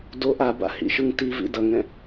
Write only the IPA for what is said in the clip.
doʔ aba̰hḭʃɯŋ tivḭ dʌŋɛ̃

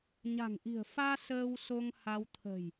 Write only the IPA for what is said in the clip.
ɲa̤˨˩ŋʔi̤˨˩ə̯faː˧ səː˧w so˧ŋha˧w t̪ʰə̤˨˩j

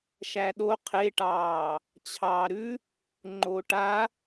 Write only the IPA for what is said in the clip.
ʃæɗo qʰeʈɑː | t͡ɕʰɑːɾʉ | ŋ͡ǃoʈa

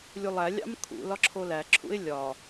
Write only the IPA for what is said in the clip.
lʲulˠælʲɑ̰m kʰṵ lɒǁʰolæǁʰṵɪ̯ lʲɒ

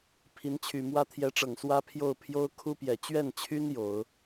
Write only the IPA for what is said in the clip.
pʰi˧˥nt͡ɕʰy˨˩mwä˥ t̪ʰjɛ˧˥ʈ͡ʂɤ˨˩ŋswä˥pʰjo˥˩ʊ̯ pʰjo˥ʊ̯ kʰu˥pjɛ˨˩ t͡ɕɥɛ˥˩nt͡ɕʰy˥n jo˨˩˦ʊ̯

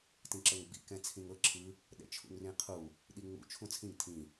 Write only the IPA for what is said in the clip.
tĩǁɤŋɡ͡bḭ kɛ̃t͡sʰĩŋɤ ǁʰɯ | ɗɛ̰t͡ʃʰṵŋrĩqʰu | ɗiŋ͡mṵ t͡ʃʰũt͡sʰĩŋ tʰĩ

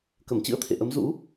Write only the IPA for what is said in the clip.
kə˧˩mt͡ɕɨ̰˧˥ə̯t̪ʰḛ˧˨ʔə˨˦m zṵ˧˥

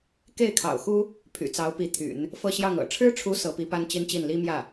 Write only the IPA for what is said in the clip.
ke˥˩ɪ̯kʰɑ̰˨˩ʊ̯xu˥ | pʰy̰˨˩t͡sɑ˧˥ʊ̯pi˧˥ t̪ʰy̰˨˩˦n | fɤ˥˧ɕjɑ˥˩ŋɤ̰˨˩ ʈ͡ʂʰɻ̩˥ʈ͡ʂʰu˧˥ sɤ˧˥pi˧˥pa˥n t͡ɕi˥nt͡ɕi˥˩n li˥mjä˥˩

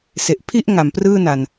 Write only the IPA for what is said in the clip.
se˨˩ʔ pʰi˥˩ʔ ŋa˩˦mprɯː˥˩na˨˩n

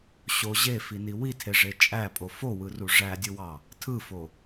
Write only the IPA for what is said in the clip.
ɕo ʑefini witʰeʐe t͡ʃʼæpʼo fowɯru ʐædʲɯwɑ | tʰɯfo

